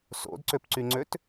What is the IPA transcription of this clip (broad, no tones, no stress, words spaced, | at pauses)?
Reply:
so̰dǀøpǀyŋ͡ǀøt